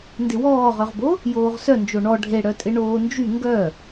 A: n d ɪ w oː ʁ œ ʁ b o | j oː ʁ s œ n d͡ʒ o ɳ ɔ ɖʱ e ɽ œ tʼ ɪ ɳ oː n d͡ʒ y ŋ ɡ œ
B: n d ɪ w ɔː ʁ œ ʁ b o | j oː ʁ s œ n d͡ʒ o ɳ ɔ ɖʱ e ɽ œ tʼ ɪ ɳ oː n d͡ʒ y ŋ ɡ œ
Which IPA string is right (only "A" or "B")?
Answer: B